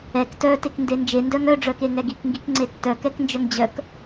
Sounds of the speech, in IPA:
ɛ k t œ t e k n d e n d͡ʒ e n d œ ŋ œ ɖ͡ʐ œ k e ŋ ɛ ɡ i k ŋ ɡ i k ŋ͡ǀ e tː œ k ɛ k n d͡ʒ œ ŋ d͡ʑ œ k

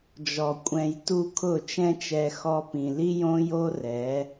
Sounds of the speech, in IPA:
d͡ʒ ɔ˨ kʷʼ ɛ̃˨ j t u˧ kʰ ʊ˦˨ t͡ʃ ɛ̃˦ t͡ʃ ɛ˧ x ɔ˧ p ĩ˨ l i˦ j õ˦ j o˦ r ɛ˨˦

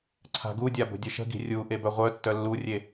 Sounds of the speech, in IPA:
ǀʰ a̤ ɡ u dʲ a b ə̤ dʲ ə ʃ ə̤ ɡ i̤ rʲ u ʔ e b œ ʁʷ œ tː œ lː u rʲ e

